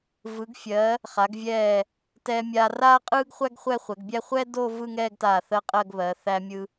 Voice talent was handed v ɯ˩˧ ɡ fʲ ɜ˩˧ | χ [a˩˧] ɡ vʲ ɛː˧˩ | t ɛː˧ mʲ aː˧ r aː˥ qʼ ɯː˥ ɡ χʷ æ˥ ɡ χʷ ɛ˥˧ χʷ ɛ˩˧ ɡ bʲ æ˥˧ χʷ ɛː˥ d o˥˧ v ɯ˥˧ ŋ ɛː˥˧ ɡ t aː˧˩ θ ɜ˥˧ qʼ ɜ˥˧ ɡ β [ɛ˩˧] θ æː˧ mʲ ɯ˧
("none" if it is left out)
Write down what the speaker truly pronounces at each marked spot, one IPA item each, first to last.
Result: a˩˧, ɜ˩˧

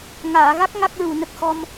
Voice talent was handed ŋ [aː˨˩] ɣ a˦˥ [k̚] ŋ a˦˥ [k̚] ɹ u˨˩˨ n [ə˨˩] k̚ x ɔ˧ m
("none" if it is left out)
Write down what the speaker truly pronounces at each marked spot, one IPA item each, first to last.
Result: aː˨˩˨, k̚, k̚, ə˨˩

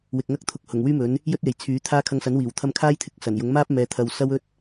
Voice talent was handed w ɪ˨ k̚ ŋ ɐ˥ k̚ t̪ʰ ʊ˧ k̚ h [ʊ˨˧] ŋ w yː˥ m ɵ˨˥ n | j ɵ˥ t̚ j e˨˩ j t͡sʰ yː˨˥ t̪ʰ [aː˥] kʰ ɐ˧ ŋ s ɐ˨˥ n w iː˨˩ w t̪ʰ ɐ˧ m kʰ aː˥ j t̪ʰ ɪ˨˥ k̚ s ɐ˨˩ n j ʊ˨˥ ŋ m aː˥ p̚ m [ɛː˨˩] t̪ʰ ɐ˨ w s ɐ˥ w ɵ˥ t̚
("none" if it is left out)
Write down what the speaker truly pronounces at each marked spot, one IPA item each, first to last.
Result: ʊ˨˩, aː˥, ɛː˨˧

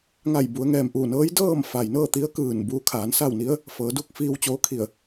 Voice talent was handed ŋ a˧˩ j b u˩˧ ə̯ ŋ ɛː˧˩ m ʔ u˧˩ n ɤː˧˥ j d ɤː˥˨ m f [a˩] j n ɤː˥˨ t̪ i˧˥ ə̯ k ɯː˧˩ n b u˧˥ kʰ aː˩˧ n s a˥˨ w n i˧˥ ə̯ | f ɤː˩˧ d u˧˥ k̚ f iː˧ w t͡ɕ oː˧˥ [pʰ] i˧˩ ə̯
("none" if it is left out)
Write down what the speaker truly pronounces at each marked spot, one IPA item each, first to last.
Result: a˩, kʰ

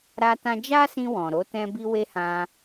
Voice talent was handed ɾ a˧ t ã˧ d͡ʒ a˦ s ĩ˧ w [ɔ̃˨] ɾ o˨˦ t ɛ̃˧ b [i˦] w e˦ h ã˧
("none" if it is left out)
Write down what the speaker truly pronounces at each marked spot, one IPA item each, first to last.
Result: ɔ̃˨, i˧

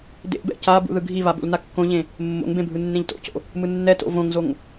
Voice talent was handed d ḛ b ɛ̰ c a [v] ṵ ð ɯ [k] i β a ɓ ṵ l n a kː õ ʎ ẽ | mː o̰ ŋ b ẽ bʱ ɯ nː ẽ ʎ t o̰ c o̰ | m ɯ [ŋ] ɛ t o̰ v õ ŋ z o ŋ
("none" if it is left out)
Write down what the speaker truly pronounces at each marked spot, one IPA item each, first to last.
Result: b, ɡʱ, nː

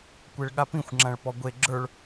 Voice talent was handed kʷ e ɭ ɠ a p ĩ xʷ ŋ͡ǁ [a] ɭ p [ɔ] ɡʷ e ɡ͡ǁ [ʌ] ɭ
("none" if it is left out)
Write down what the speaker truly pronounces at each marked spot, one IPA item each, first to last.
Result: ã, ɔ, ə˞

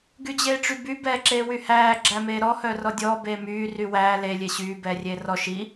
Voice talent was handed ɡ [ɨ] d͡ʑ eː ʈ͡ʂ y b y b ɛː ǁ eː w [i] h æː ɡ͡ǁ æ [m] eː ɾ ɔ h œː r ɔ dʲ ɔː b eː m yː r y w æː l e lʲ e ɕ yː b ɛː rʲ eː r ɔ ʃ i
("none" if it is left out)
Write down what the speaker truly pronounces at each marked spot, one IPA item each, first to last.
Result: y, y, m

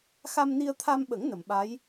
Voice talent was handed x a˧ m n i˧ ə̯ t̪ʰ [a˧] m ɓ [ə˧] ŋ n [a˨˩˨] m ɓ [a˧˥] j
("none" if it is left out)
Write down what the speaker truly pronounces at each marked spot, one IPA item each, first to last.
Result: a˧, ə˨˩˦, ə˨˩˨, a˧˥

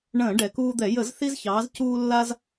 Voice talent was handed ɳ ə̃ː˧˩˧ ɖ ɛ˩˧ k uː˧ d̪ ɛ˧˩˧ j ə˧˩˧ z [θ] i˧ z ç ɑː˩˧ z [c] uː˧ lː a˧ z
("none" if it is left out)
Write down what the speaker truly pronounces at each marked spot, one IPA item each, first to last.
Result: θ, c

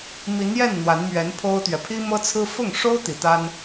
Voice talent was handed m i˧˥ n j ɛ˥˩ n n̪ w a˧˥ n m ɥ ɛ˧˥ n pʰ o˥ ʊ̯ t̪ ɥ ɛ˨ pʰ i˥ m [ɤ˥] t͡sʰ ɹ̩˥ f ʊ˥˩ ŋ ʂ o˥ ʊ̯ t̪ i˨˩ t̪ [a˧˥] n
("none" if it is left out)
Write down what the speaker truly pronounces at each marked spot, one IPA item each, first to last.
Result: ɤ˥, a˥

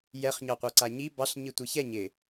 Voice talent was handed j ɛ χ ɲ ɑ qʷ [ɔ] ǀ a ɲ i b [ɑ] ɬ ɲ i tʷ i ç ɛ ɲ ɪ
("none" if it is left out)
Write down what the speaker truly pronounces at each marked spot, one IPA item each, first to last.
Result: ɑ, ɑ

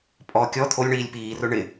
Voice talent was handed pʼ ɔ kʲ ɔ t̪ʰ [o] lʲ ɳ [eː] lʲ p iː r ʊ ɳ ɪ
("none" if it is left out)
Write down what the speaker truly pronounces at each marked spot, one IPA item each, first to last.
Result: o, iː

